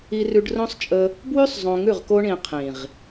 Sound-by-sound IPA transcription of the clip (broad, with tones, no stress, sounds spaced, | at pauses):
i˧ r ʉ˧ ɖ r õ˦ sˤ t͡ʃʼ ə˧ | b w ʉ˦ sˤ zˤ õ˧ ŋ ʉ˦˨ ʁ k o˦ ɳ ĩ˧ qʰ ĩ˨ ʁ